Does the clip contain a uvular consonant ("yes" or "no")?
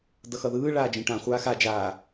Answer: yes